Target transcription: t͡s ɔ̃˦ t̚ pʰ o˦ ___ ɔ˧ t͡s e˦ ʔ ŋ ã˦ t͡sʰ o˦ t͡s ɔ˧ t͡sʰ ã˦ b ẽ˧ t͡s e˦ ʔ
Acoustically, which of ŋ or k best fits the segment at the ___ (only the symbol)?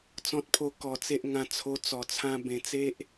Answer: k